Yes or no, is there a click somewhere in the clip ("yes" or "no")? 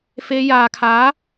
no